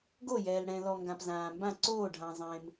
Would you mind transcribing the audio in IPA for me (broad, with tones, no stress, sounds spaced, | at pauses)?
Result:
ɡ o˥˨ j ɛː˨ l ɽ ɛ̃˨ l ɔ˨ ŋ ɡ ã˨ p z ãː˨ m b ã˥˨ ǀ oː˥˨ ɖʱ ã˨ zˤ ẽː˨ m